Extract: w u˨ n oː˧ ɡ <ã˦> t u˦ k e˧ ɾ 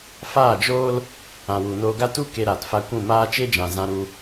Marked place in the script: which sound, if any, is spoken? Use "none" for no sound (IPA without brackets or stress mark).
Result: a˦